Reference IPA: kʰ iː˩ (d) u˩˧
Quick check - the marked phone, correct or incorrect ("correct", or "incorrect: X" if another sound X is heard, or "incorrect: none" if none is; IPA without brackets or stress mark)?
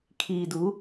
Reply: correct